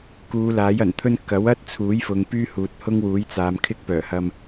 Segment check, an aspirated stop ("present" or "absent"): present